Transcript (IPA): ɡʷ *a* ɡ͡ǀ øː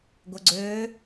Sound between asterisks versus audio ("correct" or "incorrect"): incorrect